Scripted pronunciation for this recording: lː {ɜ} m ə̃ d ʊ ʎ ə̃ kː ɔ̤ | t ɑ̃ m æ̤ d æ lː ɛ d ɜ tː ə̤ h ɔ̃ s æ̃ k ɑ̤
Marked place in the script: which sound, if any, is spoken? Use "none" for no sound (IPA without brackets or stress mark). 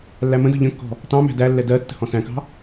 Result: æ